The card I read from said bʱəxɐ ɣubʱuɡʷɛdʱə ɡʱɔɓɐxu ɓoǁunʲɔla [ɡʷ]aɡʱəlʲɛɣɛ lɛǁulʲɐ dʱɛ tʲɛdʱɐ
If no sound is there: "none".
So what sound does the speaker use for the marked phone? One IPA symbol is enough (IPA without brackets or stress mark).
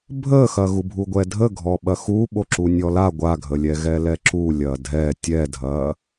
ɡʷ